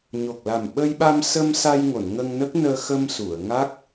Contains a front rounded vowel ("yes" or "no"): no